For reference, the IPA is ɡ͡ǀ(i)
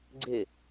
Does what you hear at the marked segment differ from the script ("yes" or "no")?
yes